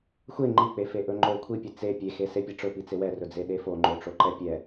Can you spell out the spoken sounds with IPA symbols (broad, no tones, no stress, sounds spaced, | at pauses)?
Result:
xʷ e ŋ͡ǃ i k͡p e f e ʔ ɵ ŋ͡ǃ o kʷʰ i pʲ e t͡s e pʲ e x e s e pʲ e ʈ͡ʂ ɵ p i t͡s e w ɛ r ɵ d͡z e ɗ e f o ŋ͡ǃ o ʈ͡ʂ o ǃ ɛ pʲ ɛ